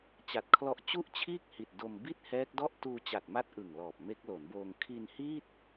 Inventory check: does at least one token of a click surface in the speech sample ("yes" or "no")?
no